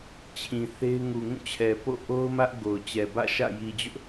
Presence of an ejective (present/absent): absent